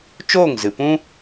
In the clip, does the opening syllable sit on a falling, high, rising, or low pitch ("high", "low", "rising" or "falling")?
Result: falling